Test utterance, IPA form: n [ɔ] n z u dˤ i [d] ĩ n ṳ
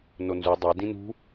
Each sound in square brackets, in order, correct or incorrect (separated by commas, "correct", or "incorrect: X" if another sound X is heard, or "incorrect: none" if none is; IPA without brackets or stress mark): incorrect: o, correct